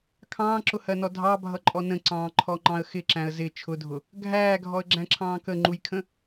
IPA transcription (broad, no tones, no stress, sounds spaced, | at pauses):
kʰ ɑ̃ː ǁ ʊ h ɜ n ɔ dʱ ɑ bʱ ʌ ǃʼ ɔ n ə̃ ǀ ɑ̃ː ǃʰ ɔ ŋ͡ǃ ɑ̃ ə̯ x ɪ ǁ æ̃ ə̯ z ɪ t͡ʃʰ ʊ dʱ ʊ | ɡʱ æː ɡʱ ɔ ə̯ ɡ͡ǁ æ̃ ǁʰ ɑ̃ː k ə ŋ͡ǃ u j kʰ ə̃